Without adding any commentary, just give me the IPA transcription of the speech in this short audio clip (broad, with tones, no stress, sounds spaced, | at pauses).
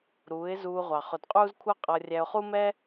ɾ uː˨˦ ɪ̯ z uː˧ ʁʷ ɑ˨ χ ʊ˨ d qʼ uː˦ z kʷʰ ʌ˦ qʼ ʌ˧ rʲ æ˧ ʊ̯ χ u˦ m ɛ˦